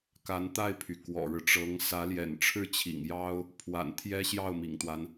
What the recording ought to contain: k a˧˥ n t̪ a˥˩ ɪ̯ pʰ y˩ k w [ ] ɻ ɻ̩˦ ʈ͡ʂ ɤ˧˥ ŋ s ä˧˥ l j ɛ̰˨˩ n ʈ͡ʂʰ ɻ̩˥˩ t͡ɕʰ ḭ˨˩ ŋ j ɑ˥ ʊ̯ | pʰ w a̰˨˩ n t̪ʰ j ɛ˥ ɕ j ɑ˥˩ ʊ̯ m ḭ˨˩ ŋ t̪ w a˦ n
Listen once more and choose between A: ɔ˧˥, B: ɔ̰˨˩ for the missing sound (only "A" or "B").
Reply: B